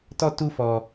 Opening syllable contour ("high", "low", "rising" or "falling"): high